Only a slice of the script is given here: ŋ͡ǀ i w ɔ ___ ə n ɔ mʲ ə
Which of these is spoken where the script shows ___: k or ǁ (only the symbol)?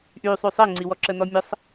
ǁ